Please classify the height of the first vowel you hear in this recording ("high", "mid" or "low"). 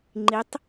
high